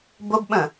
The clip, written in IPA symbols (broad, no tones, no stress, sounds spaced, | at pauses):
b o b ɓ ə̃